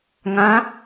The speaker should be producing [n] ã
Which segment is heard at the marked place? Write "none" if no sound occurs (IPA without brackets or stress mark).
ŋ